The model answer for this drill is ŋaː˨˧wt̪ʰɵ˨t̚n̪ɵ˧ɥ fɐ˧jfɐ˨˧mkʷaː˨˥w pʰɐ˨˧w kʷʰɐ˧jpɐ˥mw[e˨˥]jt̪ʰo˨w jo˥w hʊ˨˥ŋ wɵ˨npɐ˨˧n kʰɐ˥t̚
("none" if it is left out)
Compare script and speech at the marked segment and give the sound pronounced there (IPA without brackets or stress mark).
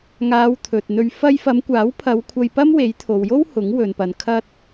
e˨˥